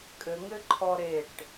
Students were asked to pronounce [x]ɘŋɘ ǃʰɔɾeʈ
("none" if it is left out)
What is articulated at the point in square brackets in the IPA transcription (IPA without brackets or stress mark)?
kʼ